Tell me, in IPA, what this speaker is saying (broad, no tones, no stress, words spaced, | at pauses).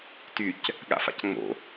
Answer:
tyc | ɠa̰fa̰cŋ͡mo̰